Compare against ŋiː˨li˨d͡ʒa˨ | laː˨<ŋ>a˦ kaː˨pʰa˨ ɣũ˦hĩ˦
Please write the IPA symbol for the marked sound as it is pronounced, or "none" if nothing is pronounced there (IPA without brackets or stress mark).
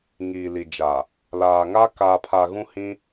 ŋ